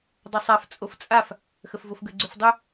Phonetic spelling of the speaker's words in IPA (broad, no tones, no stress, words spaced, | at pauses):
dˤosˤaf t͡sʼoft͡sʼaf | xəfvofɡə ɡ͡ǀʏfdˤʏ